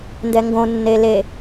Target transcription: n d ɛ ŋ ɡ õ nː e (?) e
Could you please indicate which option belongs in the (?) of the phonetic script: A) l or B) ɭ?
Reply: A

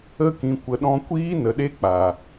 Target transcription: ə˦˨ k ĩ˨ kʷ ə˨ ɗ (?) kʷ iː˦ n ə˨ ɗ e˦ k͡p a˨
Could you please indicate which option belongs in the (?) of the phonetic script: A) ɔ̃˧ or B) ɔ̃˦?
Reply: A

